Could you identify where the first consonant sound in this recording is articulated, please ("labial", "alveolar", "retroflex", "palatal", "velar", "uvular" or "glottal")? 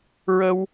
alveolar